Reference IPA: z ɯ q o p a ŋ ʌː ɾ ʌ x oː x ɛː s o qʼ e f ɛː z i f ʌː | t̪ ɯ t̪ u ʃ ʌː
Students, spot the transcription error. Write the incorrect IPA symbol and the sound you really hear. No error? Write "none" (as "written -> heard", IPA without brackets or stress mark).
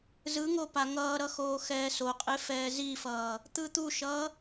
q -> ŋ